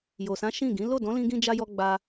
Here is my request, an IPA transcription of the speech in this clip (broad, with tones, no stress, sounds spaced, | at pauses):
j o˨ s ã˨˦ ʃ ĩ˦˨ ɡ ĩ˨˦ l o˦˨ d ɔ̃˨˦ l ĩ˧ ɡ ĩ˧ d͡ʒ a˧ j ɔ˧ ɡ͡b a˧